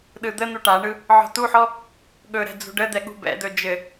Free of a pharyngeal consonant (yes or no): no